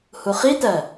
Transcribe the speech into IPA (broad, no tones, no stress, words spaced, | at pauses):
huχitɜ